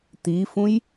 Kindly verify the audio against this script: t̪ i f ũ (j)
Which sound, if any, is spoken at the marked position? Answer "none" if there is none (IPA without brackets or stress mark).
j